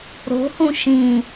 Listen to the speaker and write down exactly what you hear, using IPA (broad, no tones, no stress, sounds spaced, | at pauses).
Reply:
ɾ o̤ h ũ ʃ ĩ